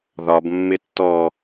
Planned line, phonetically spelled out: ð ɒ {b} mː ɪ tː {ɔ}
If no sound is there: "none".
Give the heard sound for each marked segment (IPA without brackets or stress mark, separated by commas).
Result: b, ɔ